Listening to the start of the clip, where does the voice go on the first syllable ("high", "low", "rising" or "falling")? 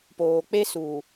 low